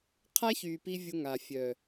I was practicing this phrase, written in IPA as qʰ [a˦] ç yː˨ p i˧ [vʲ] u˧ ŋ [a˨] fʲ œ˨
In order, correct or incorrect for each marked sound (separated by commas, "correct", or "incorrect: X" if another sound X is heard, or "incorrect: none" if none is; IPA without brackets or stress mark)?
correct, correct, correct